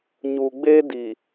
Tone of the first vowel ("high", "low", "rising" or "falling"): low